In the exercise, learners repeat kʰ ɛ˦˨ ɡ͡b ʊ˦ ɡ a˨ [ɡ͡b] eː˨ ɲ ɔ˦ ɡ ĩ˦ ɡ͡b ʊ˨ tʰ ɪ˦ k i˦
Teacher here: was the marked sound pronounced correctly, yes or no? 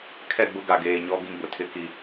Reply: no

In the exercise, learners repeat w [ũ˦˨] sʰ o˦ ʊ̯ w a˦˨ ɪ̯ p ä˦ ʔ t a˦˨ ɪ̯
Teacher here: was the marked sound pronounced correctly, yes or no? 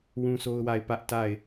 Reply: no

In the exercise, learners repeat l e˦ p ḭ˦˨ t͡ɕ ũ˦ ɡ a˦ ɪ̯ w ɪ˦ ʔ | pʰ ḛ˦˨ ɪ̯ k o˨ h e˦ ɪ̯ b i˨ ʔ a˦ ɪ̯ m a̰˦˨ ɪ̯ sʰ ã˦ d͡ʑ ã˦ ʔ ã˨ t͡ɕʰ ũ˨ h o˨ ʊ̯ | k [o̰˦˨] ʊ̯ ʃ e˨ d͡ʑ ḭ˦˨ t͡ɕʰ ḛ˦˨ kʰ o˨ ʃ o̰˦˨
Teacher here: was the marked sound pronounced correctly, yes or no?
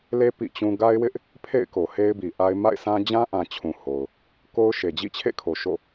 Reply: no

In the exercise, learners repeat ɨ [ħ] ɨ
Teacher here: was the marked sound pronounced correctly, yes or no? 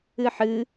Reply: yes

